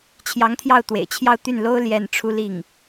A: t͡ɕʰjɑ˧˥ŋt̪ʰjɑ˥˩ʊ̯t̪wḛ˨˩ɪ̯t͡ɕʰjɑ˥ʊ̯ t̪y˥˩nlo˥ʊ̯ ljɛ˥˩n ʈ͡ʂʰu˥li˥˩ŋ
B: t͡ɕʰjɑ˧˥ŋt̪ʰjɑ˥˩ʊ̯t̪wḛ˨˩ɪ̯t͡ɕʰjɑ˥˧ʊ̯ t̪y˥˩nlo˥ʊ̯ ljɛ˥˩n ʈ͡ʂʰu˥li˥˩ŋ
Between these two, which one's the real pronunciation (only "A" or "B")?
B